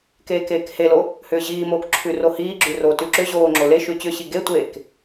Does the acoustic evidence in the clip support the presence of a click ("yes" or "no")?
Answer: yes